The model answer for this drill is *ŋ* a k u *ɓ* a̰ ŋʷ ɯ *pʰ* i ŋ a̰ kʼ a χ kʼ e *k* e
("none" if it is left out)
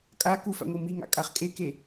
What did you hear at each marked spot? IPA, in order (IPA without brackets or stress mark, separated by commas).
kʼ, f, m, k